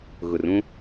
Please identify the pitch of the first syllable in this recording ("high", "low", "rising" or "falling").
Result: low